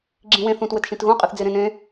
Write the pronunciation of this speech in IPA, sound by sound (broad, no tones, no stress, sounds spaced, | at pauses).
ɡ͡ǁ ĩ w ẽ θ ũ t w ɘ t ʃ ĩ t ɣ ũ qʼ ɨ θ d͡z e ɾ ẽ n ẽ